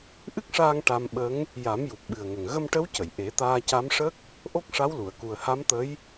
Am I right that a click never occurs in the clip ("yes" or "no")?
yes